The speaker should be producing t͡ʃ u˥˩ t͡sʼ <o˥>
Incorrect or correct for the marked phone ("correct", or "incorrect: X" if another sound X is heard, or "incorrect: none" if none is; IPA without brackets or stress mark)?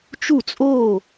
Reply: incorrect: o˥˩